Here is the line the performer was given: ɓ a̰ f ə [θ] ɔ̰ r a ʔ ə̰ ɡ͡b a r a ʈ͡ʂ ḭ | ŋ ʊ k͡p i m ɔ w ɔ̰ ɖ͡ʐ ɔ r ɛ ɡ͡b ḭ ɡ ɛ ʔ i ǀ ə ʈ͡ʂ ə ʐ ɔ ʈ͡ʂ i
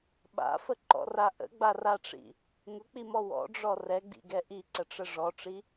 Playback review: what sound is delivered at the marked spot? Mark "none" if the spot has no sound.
ǃ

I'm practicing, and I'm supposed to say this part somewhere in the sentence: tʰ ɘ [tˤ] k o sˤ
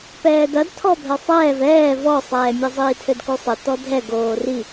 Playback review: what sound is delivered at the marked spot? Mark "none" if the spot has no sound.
d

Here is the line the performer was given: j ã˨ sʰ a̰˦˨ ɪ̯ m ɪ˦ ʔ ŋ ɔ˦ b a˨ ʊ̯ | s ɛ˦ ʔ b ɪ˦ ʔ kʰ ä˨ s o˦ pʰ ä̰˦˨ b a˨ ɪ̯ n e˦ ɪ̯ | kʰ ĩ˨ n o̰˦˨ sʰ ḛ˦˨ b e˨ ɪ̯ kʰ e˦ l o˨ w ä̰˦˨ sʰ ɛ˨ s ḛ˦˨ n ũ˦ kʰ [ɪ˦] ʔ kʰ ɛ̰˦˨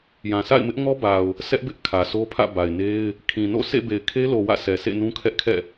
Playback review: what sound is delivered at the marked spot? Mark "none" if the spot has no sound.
ɛ˦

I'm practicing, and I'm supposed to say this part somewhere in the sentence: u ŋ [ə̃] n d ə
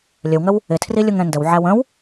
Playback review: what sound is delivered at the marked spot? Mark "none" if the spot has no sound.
ɛ̃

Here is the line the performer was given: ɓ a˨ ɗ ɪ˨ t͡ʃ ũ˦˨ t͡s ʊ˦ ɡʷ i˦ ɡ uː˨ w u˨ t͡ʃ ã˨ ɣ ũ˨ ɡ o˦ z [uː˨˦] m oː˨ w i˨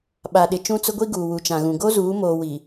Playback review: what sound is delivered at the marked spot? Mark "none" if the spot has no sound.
uː˨˦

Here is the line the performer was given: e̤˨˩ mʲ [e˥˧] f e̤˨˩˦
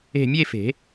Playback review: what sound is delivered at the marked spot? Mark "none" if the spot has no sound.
e˥˧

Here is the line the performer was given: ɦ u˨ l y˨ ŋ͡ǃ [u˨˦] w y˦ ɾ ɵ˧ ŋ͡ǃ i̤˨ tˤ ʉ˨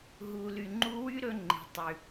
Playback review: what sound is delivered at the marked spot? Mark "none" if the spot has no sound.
u˦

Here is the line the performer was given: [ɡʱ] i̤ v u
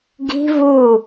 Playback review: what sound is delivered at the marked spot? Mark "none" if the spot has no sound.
ɡ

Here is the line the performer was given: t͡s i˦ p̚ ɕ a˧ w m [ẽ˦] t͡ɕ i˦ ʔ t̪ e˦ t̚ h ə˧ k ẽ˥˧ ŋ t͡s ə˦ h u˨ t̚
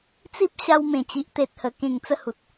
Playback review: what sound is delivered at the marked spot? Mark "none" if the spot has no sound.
ẽ˨˩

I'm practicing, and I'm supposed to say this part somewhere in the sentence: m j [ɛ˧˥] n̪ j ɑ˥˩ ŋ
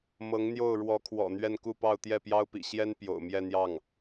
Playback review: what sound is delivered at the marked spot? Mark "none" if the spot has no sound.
ɛ˥˧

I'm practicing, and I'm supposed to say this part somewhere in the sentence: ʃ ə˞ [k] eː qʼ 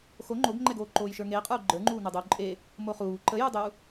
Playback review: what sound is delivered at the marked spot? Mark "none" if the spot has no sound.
ŋ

